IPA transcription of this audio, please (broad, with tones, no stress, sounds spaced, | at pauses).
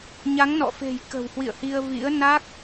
ɲ a˨˦ ŋ n ɔ̰˧˨ f e̤˨˩ j k ə̤˨˩ w h w ḭ˧˨ ə̯ h i˧ ə̯ v ḭ˧˥ ə̯ n a˦˥ k̚